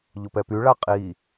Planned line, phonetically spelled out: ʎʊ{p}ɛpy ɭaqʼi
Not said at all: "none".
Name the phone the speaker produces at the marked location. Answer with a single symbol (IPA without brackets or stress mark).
p